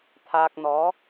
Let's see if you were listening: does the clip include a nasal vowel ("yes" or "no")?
no